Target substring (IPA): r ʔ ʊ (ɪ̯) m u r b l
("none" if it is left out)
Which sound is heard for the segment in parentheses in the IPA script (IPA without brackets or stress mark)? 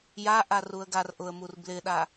ə̯